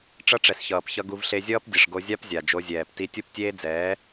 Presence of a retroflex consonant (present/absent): present